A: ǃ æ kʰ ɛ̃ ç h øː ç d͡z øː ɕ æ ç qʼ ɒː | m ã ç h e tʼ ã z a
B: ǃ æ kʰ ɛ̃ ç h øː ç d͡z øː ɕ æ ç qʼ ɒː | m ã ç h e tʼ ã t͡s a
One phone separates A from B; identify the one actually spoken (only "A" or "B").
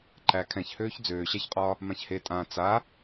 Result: B